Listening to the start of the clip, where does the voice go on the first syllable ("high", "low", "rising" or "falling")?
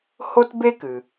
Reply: high